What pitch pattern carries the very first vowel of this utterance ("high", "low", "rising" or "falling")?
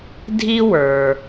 high